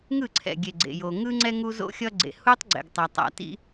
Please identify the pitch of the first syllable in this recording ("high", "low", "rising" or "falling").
falling